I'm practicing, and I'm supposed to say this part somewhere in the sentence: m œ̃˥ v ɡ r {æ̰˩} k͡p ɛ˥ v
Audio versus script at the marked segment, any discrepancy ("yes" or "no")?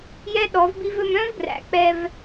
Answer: no